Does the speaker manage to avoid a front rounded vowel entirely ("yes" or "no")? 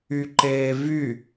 no